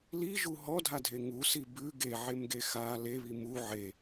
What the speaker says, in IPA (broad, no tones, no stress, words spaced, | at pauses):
liʒu ɦɔdʱadʱe ŋusi bʉ ɡeʕemɡe xa leβi mu ʕe